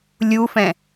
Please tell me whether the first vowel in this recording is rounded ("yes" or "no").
yes